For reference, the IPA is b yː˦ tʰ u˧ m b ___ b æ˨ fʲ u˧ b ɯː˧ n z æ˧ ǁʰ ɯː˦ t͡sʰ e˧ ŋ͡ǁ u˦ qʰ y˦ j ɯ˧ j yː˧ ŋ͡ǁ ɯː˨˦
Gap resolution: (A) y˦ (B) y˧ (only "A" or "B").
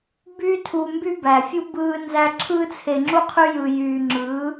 A